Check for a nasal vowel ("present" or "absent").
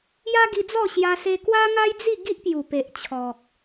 absent